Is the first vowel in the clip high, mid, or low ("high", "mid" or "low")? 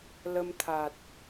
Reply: mid